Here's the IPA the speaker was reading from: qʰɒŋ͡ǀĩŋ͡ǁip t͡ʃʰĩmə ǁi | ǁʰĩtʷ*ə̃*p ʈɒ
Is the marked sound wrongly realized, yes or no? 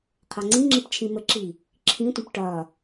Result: no